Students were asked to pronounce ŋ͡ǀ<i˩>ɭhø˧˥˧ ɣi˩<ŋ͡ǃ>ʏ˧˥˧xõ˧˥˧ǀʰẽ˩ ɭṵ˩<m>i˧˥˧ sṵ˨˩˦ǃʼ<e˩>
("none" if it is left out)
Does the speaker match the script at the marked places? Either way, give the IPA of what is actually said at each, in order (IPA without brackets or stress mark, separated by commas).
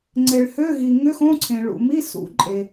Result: e˩, ŋ, m, e˩